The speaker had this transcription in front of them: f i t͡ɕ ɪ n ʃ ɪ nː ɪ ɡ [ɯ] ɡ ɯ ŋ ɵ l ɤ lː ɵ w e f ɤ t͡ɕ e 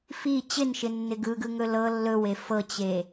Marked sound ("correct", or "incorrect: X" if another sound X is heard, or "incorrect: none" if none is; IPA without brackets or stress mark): correct